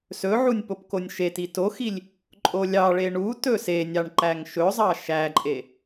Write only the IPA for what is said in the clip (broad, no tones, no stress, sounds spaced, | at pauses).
s ɵ ʕ u nʲ p o p k o nʲ ʃ e t i t o x i lʲ | ǃʼ o lʲ ɑ ɭ e ɳ u t ɵ s e nʲ ɑ ɳ ǃ æ ŋ ʃ ɵ zˤ ɑ ʃ æ ǃʼ e